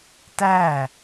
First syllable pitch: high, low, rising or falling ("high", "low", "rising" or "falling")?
falling